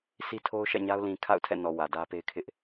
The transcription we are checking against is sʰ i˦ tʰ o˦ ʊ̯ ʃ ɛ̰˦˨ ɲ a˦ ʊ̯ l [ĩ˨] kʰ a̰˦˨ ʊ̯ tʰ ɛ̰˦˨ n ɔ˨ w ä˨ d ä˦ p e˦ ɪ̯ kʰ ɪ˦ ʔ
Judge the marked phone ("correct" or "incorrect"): correct